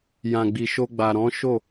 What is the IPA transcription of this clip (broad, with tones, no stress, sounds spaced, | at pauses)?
j ã˨ ɡ͡b i˨ ʃ o˧ ɡ͡b a˨ ɾ ɔ̃˨˦ ʃ o˦˨